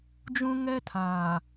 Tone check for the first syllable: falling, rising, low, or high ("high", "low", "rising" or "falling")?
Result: high